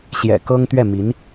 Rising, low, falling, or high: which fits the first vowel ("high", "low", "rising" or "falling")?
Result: low